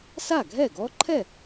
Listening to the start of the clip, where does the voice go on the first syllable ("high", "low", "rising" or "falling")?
falling